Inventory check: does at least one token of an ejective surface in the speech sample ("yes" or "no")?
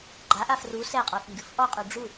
yes